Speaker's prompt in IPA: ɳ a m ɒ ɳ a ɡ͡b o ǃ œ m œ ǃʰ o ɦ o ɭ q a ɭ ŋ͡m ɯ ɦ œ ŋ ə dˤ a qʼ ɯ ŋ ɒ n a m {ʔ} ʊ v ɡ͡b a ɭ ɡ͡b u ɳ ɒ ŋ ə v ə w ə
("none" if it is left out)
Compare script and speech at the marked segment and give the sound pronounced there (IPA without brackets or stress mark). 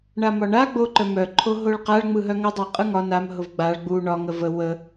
ɦ